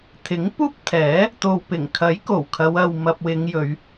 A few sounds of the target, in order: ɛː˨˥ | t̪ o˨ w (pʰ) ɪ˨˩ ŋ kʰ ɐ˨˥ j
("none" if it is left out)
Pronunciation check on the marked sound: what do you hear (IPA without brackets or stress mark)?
p